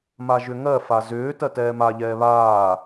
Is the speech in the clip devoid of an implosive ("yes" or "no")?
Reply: yes